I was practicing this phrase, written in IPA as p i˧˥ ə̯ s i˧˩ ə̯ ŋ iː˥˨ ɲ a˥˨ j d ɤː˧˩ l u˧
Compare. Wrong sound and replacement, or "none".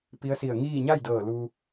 none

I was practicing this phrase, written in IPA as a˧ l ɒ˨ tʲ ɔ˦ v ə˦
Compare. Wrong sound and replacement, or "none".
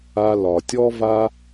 ə˦ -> a˦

